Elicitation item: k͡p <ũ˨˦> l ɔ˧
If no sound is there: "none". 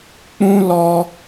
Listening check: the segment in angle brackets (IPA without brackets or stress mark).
ũ˦